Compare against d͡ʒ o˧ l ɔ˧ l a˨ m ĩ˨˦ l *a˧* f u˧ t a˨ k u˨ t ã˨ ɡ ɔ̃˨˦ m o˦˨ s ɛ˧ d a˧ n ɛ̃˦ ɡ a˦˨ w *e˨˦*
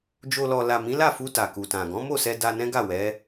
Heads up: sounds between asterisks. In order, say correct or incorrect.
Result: incorrect: a˦˨, incorrect: ɛ˨˦

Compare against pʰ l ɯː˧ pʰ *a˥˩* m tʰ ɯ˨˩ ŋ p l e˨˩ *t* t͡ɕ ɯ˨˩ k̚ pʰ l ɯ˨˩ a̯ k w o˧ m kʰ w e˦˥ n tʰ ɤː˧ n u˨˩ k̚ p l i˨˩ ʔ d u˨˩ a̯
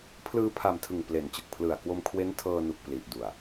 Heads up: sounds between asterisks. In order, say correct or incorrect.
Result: incorrect: a˨˩, incorrect: n

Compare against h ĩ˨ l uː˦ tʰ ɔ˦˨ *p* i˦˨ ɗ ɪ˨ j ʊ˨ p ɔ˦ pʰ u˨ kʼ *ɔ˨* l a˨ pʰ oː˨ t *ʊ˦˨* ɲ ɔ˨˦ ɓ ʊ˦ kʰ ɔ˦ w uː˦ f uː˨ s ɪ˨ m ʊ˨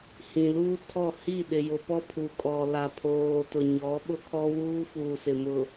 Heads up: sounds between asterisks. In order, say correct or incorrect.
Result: incorrect: h, correct, incorrect: ʊ˨

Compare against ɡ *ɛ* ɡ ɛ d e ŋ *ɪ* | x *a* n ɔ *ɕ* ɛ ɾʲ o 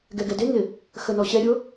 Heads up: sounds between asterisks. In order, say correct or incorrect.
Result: correct, correct, incorrect: ə, correct

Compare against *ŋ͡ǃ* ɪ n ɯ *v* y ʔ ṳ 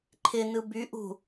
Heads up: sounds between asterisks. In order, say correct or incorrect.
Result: incorrect: ǃʰ, incorrect: b

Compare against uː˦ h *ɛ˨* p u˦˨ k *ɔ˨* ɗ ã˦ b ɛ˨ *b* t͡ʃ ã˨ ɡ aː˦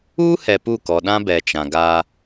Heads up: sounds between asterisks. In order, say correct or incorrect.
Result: correct, correct, incorrect: none

